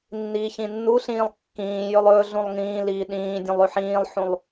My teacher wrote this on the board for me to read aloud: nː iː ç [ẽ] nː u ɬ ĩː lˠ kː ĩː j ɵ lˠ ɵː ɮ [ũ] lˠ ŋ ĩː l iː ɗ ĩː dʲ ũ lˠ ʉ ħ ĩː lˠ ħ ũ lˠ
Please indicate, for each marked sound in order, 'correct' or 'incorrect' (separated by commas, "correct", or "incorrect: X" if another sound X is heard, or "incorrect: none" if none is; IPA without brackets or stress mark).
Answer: incorrect: ĩ, correct